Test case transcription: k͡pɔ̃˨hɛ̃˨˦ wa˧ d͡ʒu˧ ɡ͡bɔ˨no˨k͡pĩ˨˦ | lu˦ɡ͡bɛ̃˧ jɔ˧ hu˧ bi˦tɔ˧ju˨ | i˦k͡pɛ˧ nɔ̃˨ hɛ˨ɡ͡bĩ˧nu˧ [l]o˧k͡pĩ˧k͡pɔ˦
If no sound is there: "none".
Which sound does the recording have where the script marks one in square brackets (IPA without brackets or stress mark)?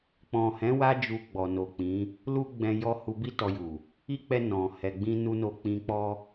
n